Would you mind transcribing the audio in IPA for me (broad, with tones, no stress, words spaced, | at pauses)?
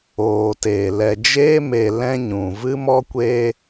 oː˨ teː˨ lɛ˨d͡ʒeː˦me˨ lɛ̃˦ɲũ˨ vɨ˦mɔ˦kʷe˦